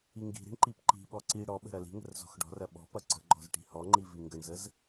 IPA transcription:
i ŋ ɡ i̤ ɾ i̤ ɳ ǃ i p ǃ i̤ ɓ ɔ ǀ i ɽ ɔ ɓ ə̤ ɾ ɐ l i̤ ŋ ə̤ r z ɔ̤ x ɖ ɔ̤ r ɐ ɓ ɔ̤ p ɐ ǀ ə̤ ɡ͡ǃ ɔ̤ z ʈ i̤ h ɔ ŋ͡ǃ i v i ŋ ɡ ə ɳ z ə z

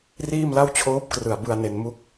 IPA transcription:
r iː˥˩ m l a˥˩ w t͡ɕʰ oː˦˥ p̚ k r ɯ˨˩ a̯ b ɯ˧ a̯ n e˧ n m u˥˩ k̚

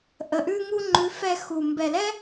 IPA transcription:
ʔ ə˨ ʔ ʉ˧ ŋ u˧ ŋ͡ǃ ʉ˨˦ f ɛ˧ x u˨ m b ɛ˨ l ɛ˦

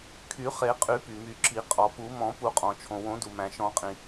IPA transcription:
kʰ y˨˩˦ χ e˨˩˦ qʼ y˨˩˦ p y˩ m y˨˩˦ ǁ i˨˩˦ qʼ ɔ˩ p u˨˩˦ m ɔ̃˨˩˦ p u˨˩˦ qʼ ɔ̃˩ t͡ʃʰ õ˩ w õ˨˩˦ d u˩ m æ̃˩ ʃ ɔ̃˨˩˦ qʼ ĩ˩

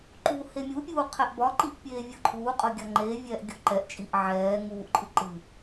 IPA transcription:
ǃ uː h e mʲ u pʲ uː qʰ ɛ ʔ b ɒ ǃ i ʔ pʲ eː vʲ ɤ ǃʰ uː qʼ ɤ ɡʲ ɒ ŋ͡ǃ eː vʲ ɛː ʔ ɡʲ o ǃ ɛ ʔ t͡ʃʼ i ʔ ʕ ɛː ŋ uː ʔ ǃʼ ɨ ǃ ɨ

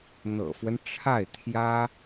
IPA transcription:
n̪ ɤ̰˨˩ f w ə˦ n ʈ͡ʂʰ a˥˩ ɪ̯ t̪ʰ j ä˥

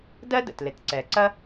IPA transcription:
d ɜ˥ d ə̰˩ t l ɪ˩ t ǀ ɛ˩ ǀ ɐ˥

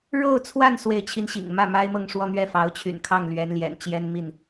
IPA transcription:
ɻ o˥˧ ʊ̯ t͡sʰ w a˥˧ n s w e˥˩ ɪ̯ t͡ɕʰ i˥ n ɕ ḭ˨˩ ŋ m ä˥˩ m a˥ ɪ̯ m ɤ˥˧ ŋ ʂ w ɔ˥˧ n̪ ɥ ɛ˥˩ f ɑ˧˥ ʊ̯ t͡ɕʰ y̰˨˩ n kʰ ɑ˥˩ ŋ l ɥ ɛ˧˥ n l j ɛ̰˨˩ n t͡ɕ j ɛ˥ n m i˥˩ n

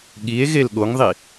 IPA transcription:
ɠ i e̯ ɣ e l ɠ o ŋ ðˤ i

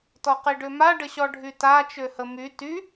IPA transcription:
t ɔ q i ɖ ø m a ɖ ə ɕ ɔ ɖʱ y t a t͡ʃ ø h ə m y t y

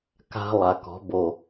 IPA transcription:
k a̤˧ lˠ a˨ k ɔ̤˨˦ b o˨

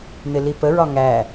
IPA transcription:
n̪ ɪ l i p ə ɹ ɒ ŋ æ

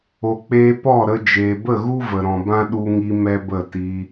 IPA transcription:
o˨ k͡p eː˧ p ɔ˦˨ ɾ ə˧ d͡ʒ eː˨ b ə˦˨ ɣ u˦ v ə˨ ɾ ɔ̃˨ b ã˦ ɗ u˧ ŋ i˧ m ɛ˦ b ə˦˨ t i˧

